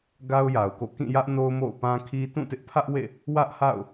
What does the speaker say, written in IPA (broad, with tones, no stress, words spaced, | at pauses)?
ɡa˦ʊ̯ja˨ʊ̯ko̰˦˨ kĩ˦˨jä˦ʔ no˦ʊ̯mo̰˦˨ʊ̯pã˦kʰi˦ tũ˦˨tɪ˦ʔpʰä˦ʔwḛ˦˨ | wä˦ʔha̰˦˨ʊ̯